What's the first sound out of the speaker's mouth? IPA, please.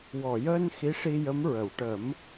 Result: w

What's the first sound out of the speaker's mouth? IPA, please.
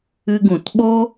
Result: ɨ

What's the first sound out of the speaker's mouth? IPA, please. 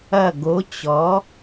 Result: ɐ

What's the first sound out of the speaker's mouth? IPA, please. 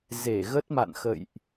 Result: z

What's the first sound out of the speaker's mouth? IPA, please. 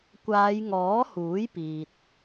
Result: kʷ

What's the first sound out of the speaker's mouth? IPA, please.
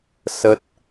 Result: s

